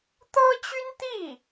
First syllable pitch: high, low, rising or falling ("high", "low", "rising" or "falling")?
high